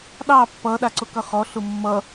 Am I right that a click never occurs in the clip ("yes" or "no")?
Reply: no